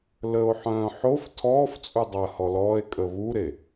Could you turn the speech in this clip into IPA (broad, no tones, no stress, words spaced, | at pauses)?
ləo̯ħœ̃ː ħof tʰɔːft͡sʼu dˤəːhɔlɔːe̯ kʼəβuɾe